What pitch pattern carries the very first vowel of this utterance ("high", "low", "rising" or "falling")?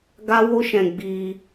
high